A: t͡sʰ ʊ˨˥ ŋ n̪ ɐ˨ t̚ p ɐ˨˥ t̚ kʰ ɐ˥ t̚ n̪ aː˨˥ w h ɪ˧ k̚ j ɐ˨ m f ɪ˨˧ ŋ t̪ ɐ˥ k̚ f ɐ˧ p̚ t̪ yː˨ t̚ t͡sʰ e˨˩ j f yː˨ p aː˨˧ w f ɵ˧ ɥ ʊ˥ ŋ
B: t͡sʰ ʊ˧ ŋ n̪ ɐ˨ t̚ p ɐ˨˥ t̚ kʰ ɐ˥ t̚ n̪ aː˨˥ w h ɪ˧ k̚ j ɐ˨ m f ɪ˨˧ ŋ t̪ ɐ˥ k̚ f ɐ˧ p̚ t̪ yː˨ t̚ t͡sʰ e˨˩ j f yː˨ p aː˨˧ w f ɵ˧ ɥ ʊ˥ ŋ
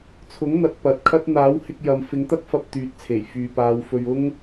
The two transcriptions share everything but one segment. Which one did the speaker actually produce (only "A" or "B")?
A